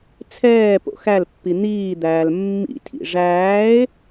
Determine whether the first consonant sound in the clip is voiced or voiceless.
voiceless